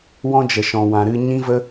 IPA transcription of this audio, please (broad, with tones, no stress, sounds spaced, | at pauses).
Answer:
w ɔ̃˦ d͡ʒ ə˨ ʃ ɔ̃˨ w ã˨ ɾ ɨ˧ ɲ ĩ˦ v ə˦